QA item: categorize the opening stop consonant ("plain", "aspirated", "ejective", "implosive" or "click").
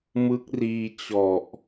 plain